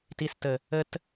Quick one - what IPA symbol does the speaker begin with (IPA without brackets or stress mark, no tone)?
t